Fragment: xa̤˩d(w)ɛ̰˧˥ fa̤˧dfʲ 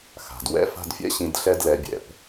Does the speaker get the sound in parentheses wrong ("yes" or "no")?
no